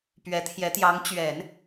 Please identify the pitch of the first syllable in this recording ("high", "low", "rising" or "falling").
rising